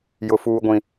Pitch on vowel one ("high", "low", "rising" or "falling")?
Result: high